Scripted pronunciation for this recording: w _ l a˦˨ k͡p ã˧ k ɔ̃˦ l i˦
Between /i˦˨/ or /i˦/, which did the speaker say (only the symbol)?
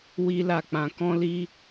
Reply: i˦